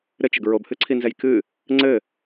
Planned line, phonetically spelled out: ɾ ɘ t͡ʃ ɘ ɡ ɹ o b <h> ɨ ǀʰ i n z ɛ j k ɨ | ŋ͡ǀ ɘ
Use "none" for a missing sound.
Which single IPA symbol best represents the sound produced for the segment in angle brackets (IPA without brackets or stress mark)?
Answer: h